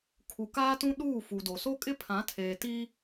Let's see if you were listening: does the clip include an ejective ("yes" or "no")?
yes